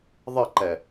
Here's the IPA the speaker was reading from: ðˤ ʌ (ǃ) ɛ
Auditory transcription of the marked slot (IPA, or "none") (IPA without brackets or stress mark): ǃ